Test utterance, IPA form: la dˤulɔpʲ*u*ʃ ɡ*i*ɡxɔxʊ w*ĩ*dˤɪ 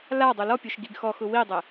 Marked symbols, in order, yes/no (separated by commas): no, yes, no